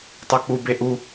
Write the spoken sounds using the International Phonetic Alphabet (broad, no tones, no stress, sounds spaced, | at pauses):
tˤ o k͡p u b e ʔ u